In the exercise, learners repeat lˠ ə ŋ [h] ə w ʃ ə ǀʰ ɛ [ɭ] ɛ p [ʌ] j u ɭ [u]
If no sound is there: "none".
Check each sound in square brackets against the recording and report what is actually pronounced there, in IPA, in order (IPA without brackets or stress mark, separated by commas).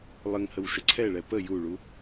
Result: h, ɭ, ə, u